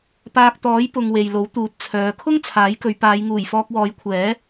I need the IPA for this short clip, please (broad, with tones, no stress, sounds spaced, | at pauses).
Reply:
p aː˧ k̚ t̪ ɔː˨˥ j p ʊ˨ ŋ w e˨ j l o˨˥ w t̪ uː˨˥ t̚ t͡sʰ œː˨˧ kʰ ʊ˥ ŋ t͡sʰ aː˨˥ j k ɵ˨˧ ɥ p aː˨˧ j ŋ uː˨˩ j f ɔː˧ k̚ w ɔː˨˧ j kʷʰ ɛː˨˥